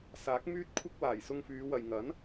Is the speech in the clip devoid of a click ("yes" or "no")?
yes